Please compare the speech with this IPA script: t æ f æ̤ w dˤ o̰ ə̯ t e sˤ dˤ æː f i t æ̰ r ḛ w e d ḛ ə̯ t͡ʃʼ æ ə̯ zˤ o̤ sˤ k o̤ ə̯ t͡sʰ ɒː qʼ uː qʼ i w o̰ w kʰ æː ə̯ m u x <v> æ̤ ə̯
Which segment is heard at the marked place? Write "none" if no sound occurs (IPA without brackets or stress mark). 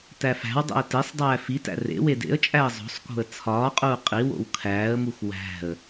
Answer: w